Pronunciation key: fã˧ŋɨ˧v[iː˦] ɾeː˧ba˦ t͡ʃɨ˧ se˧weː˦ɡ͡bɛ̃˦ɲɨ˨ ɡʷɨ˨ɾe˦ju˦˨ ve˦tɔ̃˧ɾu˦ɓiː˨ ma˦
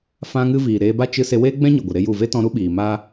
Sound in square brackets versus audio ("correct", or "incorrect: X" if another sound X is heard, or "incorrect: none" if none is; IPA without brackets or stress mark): incorrect: iː˨